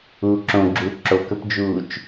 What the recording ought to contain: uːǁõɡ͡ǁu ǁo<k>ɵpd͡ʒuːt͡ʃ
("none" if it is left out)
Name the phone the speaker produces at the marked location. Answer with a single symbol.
k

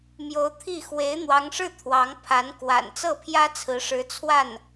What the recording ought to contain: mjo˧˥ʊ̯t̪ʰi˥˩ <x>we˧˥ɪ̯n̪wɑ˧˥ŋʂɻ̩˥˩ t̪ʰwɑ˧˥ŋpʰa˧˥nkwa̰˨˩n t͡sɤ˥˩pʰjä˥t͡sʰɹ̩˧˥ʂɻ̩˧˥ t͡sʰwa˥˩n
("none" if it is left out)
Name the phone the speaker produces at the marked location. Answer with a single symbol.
x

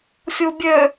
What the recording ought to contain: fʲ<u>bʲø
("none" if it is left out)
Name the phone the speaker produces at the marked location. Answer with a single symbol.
u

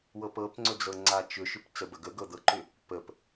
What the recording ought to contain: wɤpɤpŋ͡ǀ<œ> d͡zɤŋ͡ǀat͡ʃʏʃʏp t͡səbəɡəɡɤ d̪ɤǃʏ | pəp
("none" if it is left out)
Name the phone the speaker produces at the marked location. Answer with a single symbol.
ɵ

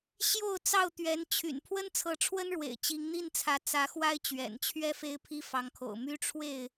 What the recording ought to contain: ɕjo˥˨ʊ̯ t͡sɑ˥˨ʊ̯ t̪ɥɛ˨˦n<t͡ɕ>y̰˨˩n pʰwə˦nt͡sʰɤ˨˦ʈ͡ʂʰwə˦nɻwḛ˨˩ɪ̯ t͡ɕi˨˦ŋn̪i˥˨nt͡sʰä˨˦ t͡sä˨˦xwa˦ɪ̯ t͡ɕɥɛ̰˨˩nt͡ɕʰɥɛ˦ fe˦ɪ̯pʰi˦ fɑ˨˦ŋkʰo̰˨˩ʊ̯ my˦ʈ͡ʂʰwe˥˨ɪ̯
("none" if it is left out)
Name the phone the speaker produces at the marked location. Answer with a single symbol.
t͡ɕʰ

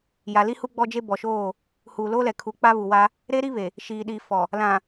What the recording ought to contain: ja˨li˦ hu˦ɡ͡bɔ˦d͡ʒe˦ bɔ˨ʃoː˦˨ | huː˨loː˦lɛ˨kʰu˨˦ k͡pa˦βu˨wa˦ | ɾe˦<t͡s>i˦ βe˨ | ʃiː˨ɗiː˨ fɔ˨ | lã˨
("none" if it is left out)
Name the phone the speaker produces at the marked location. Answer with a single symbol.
ɾ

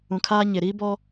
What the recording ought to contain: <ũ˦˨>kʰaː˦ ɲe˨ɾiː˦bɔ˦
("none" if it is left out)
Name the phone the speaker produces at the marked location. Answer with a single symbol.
ũ˨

